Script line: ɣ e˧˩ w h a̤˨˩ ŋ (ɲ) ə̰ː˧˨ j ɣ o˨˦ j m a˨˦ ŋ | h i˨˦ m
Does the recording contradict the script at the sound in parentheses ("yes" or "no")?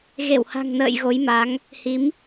yes